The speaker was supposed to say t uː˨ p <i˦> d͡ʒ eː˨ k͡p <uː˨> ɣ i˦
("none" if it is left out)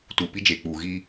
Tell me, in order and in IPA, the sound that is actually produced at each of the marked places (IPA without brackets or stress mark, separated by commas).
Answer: i˦, uː˨